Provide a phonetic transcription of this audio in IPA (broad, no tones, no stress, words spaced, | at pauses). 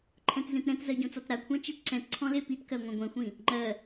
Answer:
ǃʰɛ̃tzẽtɾɛ̃tzɜ ɟõt͡sɔtɾakʷʰã t͡ʃetǀɛ̃tǀʰɔ̃ lepitkɜ ŋʷɛ̃ɡʷɛ̃xʷĩ | ŋ͡ǃɜ